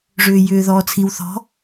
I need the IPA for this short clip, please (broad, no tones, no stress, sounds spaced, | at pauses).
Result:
ʐ ʏː j ʏː ð ɔː t͡sʰ i w θ ɔ̤